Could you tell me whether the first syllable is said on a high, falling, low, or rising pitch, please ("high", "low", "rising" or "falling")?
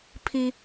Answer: high